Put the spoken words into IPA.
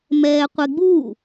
mɛːqʷeɡ͡bu

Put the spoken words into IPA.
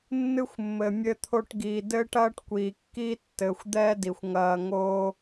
nːɨ˦xʷmːɘ˨ mʲɘ˧ t̪ʰo˧ʈɡiː˨ dɘː˦ʈɐː˦ʈkʷiː˨ kːiː˦ tːɘː˨xʷd̪ɛː˦di˨xʷ ŋɐː˧ŋoː˦

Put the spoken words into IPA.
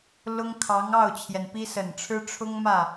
lʊ˥ŋkʰɑ˧˥ŋ ɑ˥˩ʊ̯t͡ɕʰjɛ˩npi˥ sə˨˩nʈ͡ʂʰɻ̩˥ ʈ͡ʂʰʊ˥ŋmä˥˩

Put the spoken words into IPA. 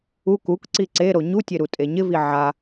uk ukǀi ǀeɾo ɲutʲe ɾutʼeɲɪvi ʕa

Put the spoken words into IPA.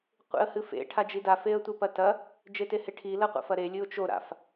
qʷḛə̯hɨfḛ ʈʰad͡ʒida feə̯tʷepɐtɐ | d͡ʒeteheʈʰi lɐqʷa̰fɐɾe lʲɨʊ̯t͡ʃo ɾa̰f

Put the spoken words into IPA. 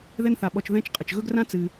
ðɛ˦nθa˩ɓɔ˨t͡ʃ ðɛ̃˦t͡ʃ qʼə˩t͡ʃ ɣɵ˥ɡrã˥ t͡sɨ˨

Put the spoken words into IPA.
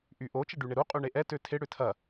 ʔyʔo t͡ʃəɖyɳɪɾu qʼyɳeʔɛ tøtʰɪ ɽʏtʰɐ

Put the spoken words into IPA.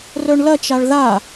rœɳlɐt͡ʃaɭ ða

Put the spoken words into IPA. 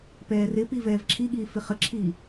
pɛːrɪpi vɛːvǁʰiɠiː fɪχəǁʰiː

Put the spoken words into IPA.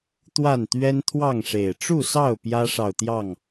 t̪wa˥˨nt̪ɥɛ˦n t̪ʰwɑ˥˨ŋʂe˨˩ɪ̯ ʈ͡ʂu˥˨sɑ˥˨ʊ̯ pjä˦ʂɑ˨ʊ̯t̪jɑ˥˨ŋ

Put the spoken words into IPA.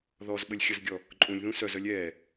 ðɔz ɓəlʲxʲəzɡʲɔ | ǃʼũlʲðũ sœzœlʲ ɛː

